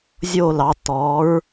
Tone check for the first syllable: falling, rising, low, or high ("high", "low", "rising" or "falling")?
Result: falling